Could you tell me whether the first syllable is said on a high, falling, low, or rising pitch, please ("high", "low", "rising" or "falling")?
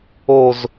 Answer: falling